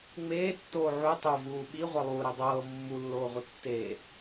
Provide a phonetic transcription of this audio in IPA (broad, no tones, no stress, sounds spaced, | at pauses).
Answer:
ŋ͡m eː tː oː ʕ u tˤ o v uː ɓ i ʁʷ ɤ lˠ uː ɾ i dˤ ɤː mː u lː oː ʁʷ ɤ tː e